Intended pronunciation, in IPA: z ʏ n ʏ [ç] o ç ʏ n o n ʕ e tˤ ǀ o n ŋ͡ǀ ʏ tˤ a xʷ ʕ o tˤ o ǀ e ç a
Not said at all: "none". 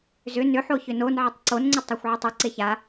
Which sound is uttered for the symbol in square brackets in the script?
ħ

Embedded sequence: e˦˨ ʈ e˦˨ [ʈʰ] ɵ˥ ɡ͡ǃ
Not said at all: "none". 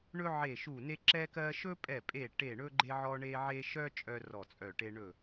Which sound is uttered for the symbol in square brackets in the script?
ɳ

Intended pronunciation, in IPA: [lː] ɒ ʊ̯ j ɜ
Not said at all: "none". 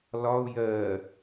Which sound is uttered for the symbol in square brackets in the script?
l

